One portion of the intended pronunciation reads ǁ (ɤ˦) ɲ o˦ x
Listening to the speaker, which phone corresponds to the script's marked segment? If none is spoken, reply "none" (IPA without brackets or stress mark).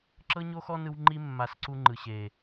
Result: ɤ˦